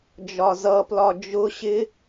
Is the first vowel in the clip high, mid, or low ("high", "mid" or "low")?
low